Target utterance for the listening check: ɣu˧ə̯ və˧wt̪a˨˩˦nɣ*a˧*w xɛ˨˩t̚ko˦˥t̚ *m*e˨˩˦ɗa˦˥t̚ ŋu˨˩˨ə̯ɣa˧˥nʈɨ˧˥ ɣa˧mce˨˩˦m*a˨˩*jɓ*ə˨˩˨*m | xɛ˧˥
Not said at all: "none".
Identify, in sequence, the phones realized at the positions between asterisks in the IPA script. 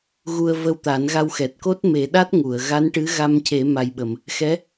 a˧, m, a˨˩, ə˨˩˨

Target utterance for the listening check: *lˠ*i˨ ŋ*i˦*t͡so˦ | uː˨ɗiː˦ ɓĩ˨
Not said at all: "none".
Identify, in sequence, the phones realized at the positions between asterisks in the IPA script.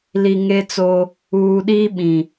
l, e˦

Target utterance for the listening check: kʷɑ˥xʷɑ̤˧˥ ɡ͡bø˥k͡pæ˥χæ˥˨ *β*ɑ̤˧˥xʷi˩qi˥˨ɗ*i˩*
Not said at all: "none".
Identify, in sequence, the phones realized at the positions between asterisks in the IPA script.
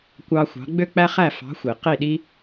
f, i˥

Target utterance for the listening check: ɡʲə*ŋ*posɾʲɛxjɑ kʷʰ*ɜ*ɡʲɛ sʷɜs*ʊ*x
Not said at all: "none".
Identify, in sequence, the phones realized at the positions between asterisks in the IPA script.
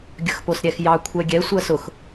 x, ɛ, ʊ

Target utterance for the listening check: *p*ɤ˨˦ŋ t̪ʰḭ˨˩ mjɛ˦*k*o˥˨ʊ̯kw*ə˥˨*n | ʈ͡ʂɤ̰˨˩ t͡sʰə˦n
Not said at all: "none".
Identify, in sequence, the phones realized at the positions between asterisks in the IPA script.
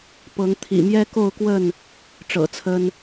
p, k, ə˥˨

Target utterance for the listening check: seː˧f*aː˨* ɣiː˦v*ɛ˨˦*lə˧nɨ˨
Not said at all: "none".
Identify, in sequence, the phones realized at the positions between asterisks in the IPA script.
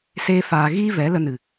aː˨, ɛ˨˦

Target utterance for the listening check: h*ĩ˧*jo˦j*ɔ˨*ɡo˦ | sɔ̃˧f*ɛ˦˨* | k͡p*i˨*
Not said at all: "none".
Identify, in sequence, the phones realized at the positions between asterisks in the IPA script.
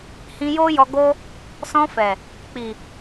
ĩ˧, ɔ˧, ɛ˨, i˨

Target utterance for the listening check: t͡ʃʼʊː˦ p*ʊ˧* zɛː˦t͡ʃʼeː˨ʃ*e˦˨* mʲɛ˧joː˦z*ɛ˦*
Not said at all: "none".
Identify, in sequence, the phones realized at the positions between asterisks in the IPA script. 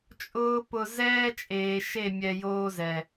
ʊ˧, e˦˨, ɛ˨

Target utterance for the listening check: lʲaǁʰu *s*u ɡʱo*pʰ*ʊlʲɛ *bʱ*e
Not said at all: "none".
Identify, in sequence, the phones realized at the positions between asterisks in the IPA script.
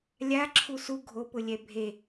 s, p, bʱ

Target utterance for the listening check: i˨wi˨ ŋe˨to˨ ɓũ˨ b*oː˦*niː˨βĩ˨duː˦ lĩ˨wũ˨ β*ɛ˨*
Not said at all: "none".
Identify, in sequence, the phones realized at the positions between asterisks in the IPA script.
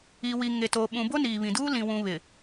o˦, ɪ˨

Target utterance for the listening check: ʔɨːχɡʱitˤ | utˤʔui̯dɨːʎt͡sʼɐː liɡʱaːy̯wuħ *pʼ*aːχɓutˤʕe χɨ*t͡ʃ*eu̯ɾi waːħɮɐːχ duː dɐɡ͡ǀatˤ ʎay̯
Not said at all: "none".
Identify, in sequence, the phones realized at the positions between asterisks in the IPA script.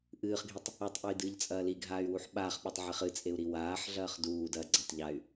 ɓ, t͡sʼ

